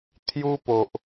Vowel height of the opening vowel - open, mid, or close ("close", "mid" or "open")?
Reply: close